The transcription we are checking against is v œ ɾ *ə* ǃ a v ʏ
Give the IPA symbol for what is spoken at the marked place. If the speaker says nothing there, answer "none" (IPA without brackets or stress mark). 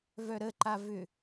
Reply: ə